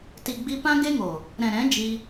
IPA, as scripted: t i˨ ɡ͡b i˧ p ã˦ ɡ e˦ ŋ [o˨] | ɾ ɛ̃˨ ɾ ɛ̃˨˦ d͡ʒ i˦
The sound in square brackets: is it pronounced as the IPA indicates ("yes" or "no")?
yes